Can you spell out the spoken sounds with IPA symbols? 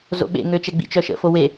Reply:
z o̰ ɓ ḛ ŋ ø t͡ʃ ɛ ɡ͡b ḭ t͡ʃ œ ʃ ə̰ f o w e

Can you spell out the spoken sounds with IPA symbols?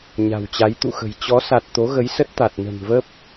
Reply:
ɲ a̤˨˩ w t͡ɕ a˨˦ j t̪ ṵ˧˨ x ə̤˨˩ j t͡ɕ ɔ˨˦ s a˨˩ t̚ t̪ o˨˦ ɣ ə˨˦ j s ə˦˥ t̚ t̪ a˨˩ t̚ n ə̤˨˩ n v ə˦˥ p̚

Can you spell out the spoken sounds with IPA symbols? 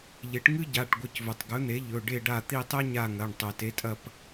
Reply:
ʎ e˩˥ ʈ ŋ ɨ˥ ɟ a˩˧˩ ʈ ɡʷ ɨ˩˧˩ c v ɵ˩ tˤ ɡ ɵ˩˥ n̪ e˩˥ ʎ ɵ˩˧˩ ɖ e˦˨ ɖ a˦˨ t̪ i˦˨ tˤ e˥ ɲ a˦˨ ŋ ɐ˩˧˩ ɳ tˤ o˩ t e˩˥ tʼ ɐ˦˨ p

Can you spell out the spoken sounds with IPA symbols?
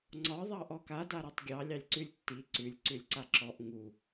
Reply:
ŋ͡ǀ ɒ ðˤ ɑ ʔ ɔ k a d a ɾ ɒ tˤ ɡʲ ɑ lʲ ɑ lʲ ǀ ʉ lʲ tː i ǀ ʉ lʲ ǀ ʉ lʲ ǀ a ǁ ɔ ʔ ŋ u

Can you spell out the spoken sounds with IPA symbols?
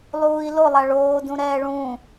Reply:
lˠ uː i̯ l o lˠ a ɭ oː d ũ ɾ ɛː ɭ ũ

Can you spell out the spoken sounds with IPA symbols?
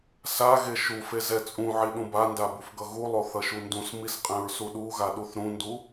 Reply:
s a ɣ e ʃ u f e z ɛ t͡sʼ ũ ʕ i ɗ ũ b a n d a b u f ɡ ʌ ɣ u lˠ o θ ʌ ʃ u n d ũ s m i s qʼ ɛ̃ ɹ s u ɗ u ɣ a ɗ u θ ɾ ũ n d u

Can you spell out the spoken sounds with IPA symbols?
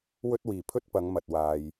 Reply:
w ɵ˥ t̚ w iː˨˩ pʰ ɵ˥ t̚ p ɐ˨˧ ŋ m ɐ˨ t̚ w aː˧ j

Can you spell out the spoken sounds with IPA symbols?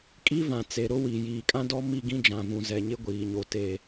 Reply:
kʼ i˦ v ã˨ t͡s e˨ ɾ ʊ˦ w i˨ j iː˨ kʼ ã˦ d ɔ˦ m i˦˨ ɡ ĩ˦ d͡ʒ ã˨ v ũ˨ z ɛ˨ ɲ ɪ˦ ɡʷ iː˨ ɲ o˨ t e˦

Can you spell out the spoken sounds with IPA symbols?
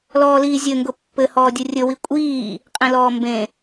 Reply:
l ɔː l iː zʲ ɘ ŋ ɡ ʊ pː ɘ h ɔː dʲ ɯ rʲ ɵ w i kʷʼ iː | qʼ ẽ l ɔː m b ẽ

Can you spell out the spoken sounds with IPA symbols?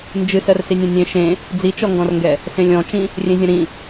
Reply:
n d͡ʒ ɨ s ɜ r s i nʲ ẽ nʲ ẽ ʃ ẽ | d͡z i t͡ʃ ɔ ŋ ɡ ɔ̃ r ŋ ɡ ɛ | s ẽ lʲ ɔ̃ t͡ʃ ĩ | rʲ ẽ zʲ ɐ̃ ɾ ĩ

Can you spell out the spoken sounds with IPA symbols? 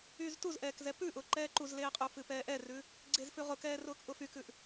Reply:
yː z t u z ʔ ɛː k z ɛ p ʉ ʔ ʊː ǃ ɛː ǃ u z l eː qʼ u f ɨ p ɛː ʔ ɛ r ʉ | ɡ͡ǀ e z f ʉ ʁ ʊ k ɛː r ʊː k ʔ ʊ f y k ʉ ʔ

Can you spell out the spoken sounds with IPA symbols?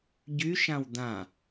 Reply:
ɟ y ʃ ã w d̪ ã

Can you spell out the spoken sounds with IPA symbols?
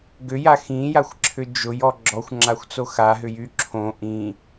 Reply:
ɡ ʏ j a x ĩ j a xʷ ǁʰ ʏ d͡ʒ ʊ j ɔ ɡ͡ǁ ɔ xʷ ŋ͡ǁ a xʷ t͡s o x a ɦ ʏ j y ǁʰ õ ʔ ĩ

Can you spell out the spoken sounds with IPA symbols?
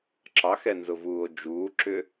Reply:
ǁ ɑ x ɛ n z ʊ v uː o̯ d͡ʒ uː ǁ ʏ

